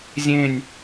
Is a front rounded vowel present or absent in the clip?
absent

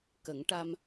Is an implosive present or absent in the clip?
absent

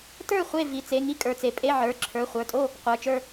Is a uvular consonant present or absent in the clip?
present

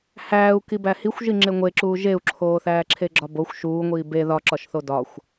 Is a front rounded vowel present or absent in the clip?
absent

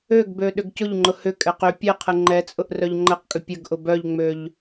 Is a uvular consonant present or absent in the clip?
present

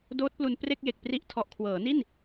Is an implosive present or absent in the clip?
absent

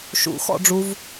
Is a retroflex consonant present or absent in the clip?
present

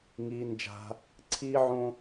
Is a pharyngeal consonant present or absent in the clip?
present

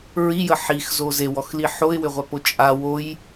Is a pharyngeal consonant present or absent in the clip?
present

